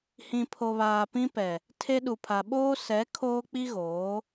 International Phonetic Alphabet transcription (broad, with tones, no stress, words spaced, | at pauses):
hĩ˨pʰo˨βaː˨ pĩ˦pɛ˨ | tʰe˦ɗu˨pʰa˨ ɓoː˦sɛ˨˦ kʰoː˦k͡pi˦ɣoː˨˦